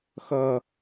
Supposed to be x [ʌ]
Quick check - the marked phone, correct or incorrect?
correct